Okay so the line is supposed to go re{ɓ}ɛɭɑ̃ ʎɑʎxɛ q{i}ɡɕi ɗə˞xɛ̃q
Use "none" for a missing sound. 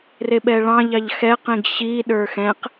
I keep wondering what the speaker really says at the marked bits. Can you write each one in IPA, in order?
ɓ, ĩ

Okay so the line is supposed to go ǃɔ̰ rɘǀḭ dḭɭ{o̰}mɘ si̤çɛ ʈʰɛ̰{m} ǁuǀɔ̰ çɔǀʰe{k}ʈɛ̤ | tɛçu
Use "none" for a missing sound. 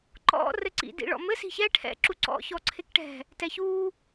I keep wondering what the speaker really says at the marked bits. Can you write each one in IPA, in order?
ɔ̰, none, k

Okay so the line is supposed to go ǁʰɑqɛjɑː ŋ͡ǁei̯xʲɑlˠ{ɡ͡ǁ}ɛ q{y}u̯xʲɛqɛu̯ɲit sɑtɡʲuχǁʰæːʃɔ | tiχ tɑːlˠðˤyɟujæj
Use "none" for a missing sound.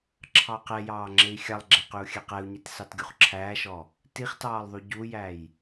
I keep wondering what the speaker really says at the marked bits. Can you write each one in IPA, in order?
ɡ͡ǁ, y

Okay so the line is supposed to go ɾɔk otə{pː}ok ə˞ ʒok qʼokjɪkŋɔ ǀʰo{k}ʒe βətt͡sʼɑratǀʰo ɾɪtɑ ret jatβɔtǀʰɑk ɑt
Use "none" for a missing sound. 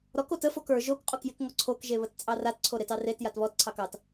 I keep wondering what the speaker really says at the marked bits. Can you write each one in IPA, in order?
f, k

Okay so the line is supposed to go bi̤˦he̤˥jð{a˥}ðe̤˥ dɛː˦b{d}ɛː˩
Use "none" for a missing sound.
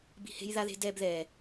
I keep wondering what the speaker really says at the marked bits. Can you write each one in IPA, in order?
a˥, ð

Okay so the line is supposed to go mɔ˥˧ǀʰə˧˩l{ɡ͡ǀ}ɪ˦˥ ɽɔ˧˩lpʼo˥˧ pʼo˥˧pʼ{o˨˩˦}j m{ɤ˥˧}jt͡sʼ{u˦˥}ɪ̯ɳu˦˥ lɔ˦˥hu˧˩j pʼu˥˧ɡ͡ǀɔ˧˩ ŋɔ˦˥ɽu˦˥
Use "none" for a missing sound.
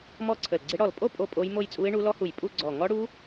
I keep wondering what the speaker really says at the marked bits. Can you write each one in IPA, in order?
ɡ͡ǀ, o˦˥, o˥˧, u˦˥

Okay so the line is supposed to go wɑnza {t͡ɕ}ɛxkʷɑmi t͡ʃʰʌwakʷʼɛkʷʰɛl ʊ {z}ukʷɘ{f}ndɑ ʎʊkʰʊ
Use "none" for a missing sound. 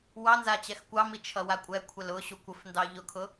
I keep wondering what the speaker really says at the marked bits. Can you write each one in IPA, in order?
t͡ɕ, ɕ, f

